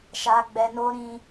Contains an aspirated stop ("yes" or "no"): no